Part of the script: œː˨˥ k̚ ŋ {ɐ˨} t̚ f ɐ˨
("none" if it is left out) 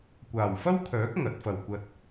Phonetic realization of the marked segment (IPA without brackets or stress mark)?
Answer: ɐ˨˥